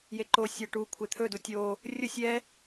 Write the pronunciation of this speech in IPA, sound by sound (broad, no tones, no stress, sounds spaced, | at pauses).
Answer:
j e ǃ o sʲ a ʈ u kʷʰ e t̪ʰ ɵ d u tʲ o | rʲ ʊ sʲ ɛ